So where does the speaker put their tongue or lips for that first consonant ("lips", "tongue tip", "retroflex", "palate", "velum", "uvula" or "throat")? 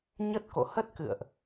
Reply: palate